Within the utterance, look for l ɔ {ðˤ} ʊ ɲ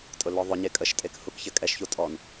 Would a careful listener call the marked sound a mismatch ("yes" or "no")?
no